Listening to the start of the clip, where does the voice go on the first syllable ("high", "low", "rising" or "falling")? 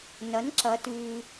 rising